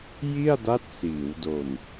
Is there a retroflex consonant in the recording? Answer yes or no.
no